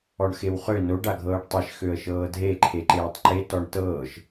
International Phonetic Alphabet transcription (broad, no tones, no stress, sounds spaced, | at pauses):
ɔ ɳ x e w χ ø n o ɖ a ɡʱ ɤː ɖ tˤ e ʃ x ø ə̯ ʃ ɤː dʱ e ǃʰ e ǃ eː tˤ ǃ e t ɔ ɳ t ɤː ʃ